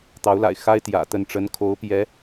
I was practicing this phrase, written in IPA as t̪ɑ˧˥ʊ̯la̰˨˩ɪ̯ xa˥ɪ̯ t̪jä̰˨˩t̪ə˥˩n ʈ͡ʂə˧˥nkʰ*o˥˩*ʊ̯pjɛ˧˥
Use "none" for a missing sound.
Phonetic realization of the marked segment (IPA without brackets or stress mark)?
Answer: o˧˥